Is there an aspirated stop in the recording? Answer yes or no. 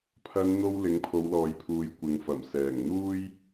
yes